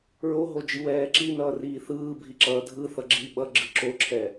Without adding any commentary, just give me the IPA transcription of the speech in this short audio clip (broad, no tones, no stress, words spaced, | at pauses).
ɹoɦod͡ʒiwɛː ǁinʌːriː θɯːbʱi ǁʌːdʱɯ θʌɡ͡ǁi ɓʌɡ͡ǁɯ ǁoǁʰɛ